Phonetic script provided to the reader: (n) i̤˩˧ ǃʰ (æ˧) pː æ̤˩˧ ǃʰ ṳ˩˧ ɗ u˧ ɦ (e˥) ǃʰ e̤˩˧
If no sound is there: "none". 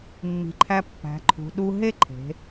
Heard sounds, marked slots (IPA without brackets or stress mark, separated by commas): mː, æ˧, e˥